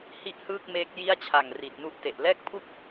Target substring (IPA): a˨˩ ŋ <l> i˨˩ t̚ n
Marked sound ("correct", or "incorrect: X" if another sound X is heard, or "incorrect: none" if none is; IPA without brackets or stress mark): incorrect: r